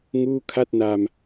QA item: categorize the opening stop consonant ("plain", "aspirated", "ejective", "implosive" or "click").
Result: aspirated